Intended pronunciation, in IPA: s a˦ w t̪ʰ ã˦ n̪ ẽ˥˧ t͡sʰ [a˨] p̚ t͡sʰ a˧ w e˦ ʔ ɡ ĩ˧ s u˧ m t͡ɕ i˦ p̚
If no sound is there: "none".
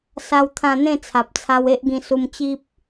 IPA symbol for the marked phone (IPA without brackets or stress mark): a˨